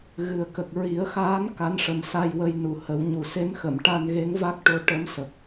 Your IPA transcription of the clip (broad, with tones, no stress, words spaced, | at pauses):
ɣɨ˨˩ə̯kə˨˩k̚ ɹi˨˩˦ə̯xaː˧˥n ka˧˥nʂə˨˩˦msa˧jwə˧j nu˨˩ hə˨˩˦wɲu˨˩ se˧˥mxə˨˩˨m ʈa˧nɣe˧˥ŋ va˦˥k̚ʈo˧˥ ʈə˧˥msə˨˩k̚